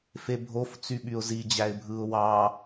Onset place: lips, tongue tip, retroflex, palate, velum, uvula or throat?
lips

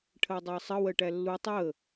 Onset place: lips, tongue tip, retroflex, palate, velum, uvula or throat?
retroflex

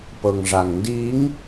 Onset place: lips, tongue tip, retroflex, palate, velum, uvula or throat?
lips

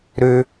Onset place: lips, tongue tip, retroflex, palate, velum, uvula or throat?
tongue tip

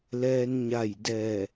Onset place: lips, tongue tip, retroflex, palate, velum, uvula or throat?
tongue tip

